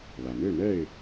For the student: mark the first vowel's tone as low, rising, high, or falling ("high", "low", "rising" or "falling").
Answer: low